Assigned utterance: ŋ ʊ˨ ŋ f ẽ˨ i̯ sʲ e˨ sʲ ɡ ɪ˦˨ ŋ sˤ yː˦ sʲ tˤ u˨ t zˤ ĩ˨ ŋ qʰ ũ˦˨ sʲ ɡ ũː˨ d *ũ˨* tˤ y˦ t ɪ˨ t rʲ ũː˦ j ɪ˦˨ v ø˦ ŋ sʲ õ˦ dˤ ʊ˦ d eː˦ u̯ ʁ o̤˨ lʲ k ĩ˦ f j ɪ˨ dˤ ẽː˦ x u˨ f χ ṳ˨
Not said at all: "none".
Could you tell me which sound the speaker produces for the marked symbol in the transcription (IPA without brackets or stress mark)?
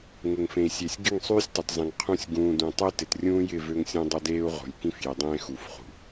ũ˨